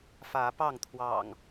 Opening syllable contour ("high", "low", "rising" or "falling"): rising